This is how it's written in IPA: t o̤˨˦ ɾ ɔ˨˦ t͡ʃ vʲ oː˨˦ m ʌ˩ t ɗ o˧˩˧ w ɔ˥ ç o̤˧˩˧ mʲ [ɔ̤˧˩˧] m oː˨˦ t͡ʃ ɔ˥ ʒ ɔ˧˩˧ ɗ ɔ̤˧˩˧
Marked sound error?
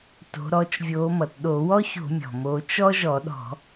yes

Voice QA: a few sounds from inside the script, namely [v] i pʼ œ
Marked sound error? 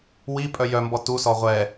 yes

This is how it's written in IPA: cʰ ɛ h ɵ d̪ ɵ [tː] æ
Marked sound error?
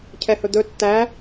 no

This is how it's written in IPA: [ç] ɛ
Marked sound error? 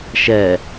yes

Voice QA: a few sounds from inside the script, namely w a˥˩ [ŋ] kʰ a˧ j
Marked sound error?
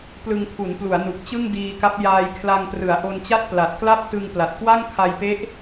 no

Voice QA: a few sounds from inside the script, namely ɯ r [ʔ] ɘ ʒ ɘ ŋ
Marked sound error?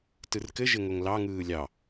yes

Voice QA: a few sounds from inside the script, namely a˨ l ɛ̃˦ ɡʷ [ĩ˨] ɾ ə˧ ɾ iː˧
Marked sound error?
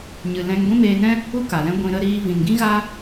yes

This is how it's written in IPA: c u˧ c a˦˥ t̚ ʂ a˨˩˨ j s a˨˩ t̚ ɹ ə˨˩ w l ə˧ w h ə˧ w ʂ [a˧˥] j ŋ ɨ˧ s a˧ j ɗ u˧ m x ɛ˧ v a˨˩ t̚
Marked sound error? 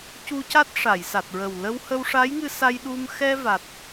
no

